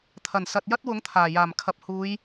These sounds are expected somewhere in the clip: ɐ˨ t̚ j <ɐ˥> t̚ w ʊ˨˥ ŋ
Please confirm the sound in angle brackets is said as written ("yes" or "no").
yes